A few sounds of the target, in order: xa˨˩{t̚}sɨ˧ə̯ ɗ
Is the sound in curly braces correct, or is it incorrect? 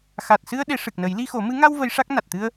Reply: correct